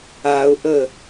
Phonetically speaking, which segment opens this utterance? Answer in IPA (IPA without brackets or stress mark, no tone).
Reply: a